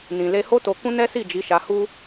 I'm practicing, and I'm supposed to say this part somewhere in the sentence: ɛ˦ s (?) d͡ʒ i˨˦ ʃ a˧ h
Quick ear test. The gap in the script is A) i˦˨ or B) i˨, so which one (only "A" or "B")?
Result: A